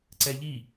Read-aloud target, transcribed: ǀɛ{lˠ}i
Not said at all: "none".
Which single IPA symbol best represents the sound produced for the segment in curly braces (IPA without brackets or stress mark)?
ʎ